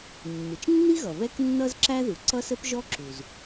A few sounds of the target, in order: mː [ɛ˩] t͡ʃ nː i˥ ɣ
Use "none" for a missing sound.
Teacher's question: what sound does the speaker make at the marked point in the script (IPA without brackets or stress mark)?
ɪ˩